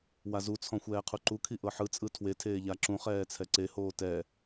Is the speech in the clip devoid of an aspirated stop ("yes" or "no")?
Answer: no